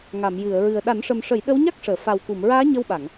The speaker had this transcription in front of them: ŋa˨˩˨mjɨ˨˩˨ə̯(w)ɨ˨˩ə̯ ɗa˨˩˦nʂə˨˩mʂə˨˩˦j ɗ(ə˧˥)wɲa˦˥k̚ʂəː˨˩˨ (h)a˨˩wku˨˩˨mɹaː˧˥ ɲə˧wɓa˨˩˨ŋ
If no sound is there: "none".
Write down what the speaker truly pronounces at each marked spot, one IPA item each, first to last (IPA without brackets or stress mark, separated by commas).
ɹ, ə˧˥, f